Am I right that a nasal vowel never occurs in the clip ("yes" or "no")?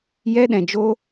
no